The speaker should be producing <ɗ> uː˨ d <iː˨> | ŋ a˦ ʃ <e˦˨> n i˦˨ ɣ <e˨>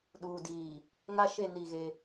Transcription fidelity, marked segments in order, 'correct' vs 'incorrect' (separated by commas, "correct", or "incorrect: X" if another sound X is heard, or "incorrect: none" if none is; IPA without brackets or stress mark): correct, correct, correct, incorrect: e˦